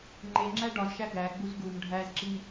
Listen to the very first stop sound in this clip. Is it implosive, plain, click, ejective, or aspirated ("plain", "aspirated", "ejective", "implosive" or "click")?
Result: click